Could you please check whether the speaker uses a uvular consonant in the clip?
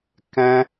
no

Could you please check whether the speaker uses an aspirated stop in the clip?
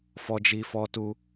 no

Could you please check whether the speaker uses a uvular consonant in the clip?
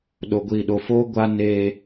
no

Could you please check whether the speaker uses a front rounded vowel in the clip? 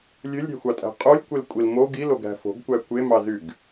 yes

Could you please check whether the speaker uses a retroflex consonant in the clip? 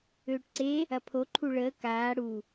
yes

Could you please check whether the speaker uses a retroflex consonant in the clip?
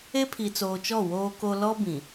no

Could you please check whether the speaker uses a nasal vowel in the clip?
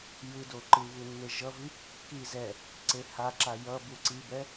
no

